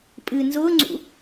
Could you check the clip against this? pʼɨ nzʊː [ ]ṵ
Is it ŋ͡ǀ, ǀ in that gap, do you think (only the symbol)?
ŋ͡ǀ